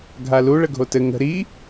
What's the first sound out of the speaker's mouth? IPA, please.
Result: ɡʱ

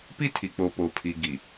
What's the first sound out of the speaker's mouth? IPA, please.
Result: p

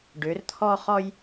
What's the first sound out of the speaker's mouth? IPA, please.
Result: ɖ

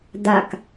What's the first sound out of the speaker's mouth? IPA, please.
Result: d̪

